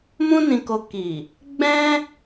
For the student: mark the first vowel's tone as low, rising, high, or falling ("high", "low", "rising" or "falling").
high